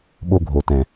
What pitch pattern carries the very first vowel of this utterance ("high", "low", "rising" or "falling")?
high